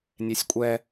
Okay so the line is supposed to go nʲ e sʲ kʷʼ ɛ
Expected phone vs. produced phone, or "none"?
none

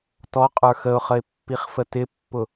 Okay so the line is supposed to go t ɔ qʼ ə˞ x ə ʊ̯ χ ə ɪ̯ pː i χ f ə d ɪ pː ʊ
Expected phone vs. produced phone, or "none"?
d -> t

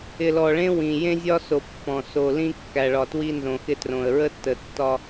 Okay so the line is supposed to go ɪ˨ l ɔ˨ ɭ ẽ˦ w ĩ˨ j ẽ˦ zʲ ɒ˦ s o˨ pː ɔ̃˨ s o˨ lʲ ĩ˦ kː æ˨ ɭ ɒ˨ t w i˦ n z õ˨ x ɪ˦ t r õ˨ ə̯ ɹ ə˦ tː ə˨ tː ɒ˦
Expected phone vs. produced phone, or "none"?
lʲ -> l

